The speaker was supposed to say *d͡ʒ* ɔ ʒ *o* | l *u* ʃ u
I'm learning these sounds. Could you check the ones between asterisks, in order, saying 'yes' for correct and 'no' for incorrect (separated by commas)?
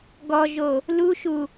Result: no, yes, yes